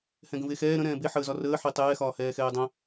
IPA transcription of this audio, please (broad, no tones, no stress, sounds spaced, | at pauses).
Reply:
h ɛ̃ ɡ ə̃ v e x ɛː ɾ ə̃ ɾ ɛ̃ː b e ħ əː z ɒ r əː ħ e tˤ ɛː x ɒː h ɛː x ɛː dˤ ɛ̃